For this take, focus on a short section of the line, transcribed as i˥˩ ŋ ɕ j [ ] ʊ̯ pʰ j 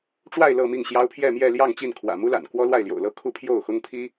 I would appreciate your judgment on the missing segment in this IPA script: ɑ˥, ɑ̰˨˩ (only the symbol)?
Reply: ɑ˥